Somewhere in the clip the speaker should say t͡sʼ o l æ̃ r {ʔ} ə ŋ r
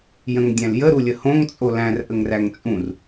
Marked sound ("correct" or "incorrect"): correct